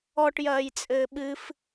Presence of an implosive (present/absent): present